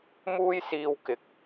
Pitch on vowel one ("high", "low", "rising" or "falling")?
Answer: high